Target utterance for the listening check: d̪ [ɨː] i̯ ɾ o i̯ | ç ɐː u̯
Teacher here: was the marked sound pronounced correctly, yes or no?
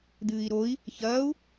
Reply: yes